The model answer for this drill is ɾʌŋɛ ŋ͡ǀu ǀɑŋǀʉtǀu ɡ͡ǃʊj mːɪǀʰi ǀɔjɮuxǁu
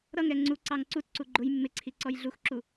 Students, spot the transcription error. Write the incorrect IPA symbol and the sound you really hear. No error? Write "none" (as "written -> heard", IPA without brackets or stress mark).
ʉ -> u